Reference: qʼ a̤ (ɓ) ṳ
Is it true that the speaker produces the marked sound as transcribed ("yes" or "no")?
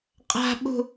yes